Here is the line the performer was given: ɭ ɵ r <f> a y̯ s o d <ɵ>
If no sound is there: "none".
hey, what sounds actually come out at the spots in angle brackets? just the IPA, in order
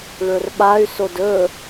ɓ, ɵ

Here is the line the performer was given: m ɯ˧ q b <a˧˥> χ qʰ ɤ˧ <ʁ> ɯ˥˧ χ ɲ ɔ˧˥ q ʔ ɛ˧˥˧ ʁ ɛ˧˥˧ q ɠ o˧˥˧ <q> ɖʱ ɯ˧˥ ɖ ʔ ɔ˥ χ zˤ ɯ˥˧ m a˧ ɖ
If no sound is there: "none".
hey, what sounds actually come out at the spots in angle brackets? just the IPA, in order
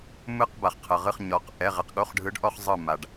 a˧, ʁ, χ

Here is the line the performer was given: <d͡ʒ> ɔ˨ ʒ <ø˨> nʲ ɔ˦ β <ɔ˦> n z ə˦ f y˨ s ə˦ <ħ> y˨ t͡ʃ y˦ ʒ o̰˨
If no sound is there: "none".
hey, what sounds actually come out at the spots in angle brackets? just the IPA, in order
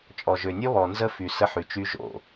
t͡ʃʼ, ø˨, ɔ˨, ħ

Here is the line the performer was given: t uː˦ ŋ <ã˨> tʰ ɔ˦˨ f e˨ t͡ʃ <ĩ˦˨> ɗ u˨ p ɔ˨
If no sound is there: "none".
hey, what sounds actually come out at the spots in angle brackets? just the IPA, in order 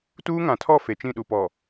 ã˨, ĩ˦˨

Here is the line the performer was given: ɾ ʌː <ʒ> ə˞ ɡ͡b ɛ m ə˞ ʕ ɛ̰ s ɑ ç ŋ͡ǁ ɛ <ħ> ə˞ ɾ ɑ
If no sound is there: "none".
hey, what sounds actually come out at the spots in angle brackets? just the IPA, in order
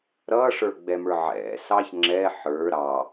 ʂ, ħ

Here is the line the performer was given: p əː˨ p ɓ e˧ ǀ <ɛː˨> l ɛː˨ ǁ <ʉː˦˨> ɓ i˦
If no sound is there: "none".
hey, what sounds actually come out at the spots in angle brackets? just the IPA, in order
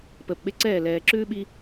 ɛː˦˨, ʉː˦

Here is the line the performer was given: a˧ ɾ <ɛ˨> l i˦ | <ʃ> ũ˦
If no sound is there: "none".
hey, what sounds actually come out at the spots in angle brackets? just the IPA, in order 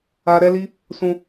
ɛ˦, s

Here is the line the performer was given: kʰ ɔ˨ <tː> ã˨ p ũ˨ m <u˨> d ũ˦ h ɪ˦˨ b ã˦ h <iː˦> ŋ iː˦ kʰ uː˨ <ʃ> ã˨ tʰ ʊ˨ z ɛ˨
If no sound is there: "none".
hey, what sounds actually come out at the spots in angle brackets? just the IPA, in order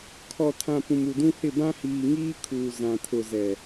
tʰ, u˨, iː˨, z

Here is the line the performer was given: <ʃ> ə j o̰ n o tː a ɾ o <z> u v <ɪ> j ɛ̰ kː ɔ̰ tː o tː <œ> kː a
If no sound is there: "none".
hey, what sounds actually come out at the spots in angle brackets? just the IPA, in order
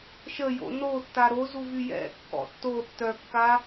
ʃ, z, y, œ

